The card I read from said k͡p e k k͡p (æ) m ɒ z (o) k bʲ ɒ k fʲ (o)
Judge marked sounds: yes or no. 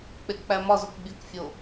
yes, yes, yes

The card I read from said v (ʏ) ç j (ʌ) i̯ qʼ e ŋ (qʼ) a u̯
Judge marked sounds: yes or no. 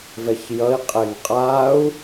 no, yes, yes

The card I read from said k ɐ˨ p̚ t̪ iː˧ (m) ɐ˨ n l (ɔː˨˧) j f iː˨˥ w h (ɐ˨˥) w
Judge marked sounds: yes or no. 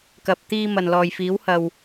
yes, no, no

